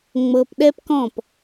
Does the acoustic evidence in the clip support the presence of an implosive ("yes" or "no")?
yes